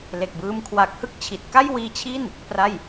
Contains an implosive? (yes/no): no